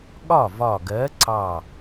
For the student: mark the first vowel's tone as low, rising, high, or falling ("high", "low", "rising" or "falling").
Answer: falling